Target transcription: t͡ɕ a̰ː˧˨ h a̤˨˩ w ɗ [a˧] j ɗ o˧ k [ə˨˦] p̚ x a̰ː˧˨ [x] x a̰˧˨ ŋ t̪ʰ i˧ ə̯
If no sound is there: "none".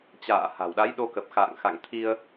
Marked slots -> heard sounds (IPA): a˨˦, ə˨˩, ŋ

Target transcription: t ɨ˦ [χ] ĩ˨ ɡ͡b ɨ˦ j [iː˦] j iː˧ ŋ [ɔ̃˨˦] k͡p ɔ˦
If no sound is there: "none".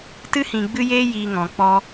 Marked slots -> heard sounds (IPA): h, eː˦, ɔ̃˨

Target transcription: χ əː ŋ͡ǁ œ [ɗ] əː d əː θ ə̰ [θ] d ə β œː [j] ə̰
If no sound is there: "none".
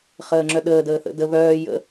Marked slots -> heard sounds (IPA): ɗ, none, j

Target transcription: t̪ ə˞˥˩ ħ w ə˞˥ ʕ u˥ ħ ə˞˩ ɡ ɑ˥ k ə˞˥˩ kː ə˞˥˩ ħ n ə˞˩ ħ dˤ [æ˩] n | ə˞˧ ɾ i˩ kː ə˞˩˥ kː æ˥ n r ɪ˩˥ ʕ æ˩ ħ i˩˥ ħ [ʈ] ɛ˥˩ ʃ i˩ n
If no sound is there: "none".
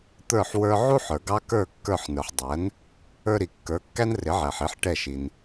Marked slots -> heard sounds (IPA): æ˩˥, ʈ

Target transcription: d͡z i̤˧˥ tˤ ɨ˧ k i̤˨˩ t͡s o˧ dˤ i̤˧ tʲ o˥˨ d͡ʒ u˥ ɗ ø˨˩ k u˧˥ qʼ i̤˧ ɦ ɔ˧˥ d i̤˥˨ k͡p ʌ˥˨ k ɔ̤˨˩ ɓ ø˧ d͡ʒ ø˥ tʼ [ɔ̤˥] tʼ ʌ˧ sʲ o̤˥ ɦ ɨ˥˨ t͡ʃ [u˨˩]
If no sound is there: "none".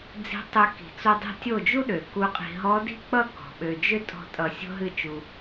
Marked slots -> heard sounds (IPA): ɔ̤˥˨, u˧

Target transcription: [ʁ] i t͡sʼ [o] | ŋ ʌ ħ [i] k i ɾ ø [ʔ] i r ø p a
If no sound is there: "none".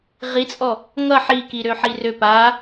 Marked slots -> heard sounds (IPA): ʁ, ɔ, i, ħ

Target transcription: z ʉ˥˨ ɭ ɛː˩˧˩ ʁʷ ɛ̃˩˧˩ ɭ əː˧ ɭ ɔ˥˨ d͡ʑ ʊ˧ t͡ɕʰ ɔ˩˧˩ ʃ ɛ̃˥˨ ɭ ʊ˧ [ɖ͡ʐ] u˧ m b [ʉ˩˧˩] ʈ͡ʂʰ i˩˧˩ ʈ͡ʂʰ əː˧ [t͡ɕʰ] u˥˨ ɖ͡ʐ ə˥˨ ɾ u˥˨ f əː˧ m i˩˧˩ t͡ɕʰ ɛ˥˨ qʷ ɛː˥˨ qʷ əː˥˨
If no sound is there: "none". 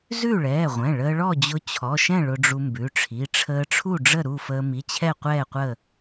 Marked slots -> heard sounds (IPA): ɖ͡ʐ, ʉ˩˧˩, ʈ͡ʂʰ

